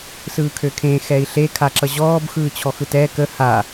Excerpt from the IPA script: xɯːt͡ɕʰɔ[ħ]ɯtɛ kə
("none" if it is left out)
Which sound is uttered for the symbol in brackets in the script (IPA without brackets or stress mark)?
x